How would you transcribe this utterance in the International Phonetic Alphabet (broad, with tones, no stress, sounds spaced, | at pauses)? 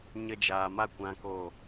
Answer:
ɲ ə˧ d͡ʒ aː˨ m a˦˨ kʷ ã˦ k o˦˨